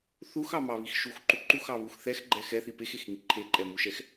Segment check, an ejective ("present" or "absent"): present